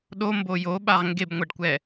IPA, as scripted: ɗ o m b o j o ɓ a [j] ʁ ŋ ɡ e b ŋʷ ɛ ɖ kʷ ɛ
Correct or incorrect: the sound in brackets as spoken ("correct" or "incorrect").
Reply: incorrect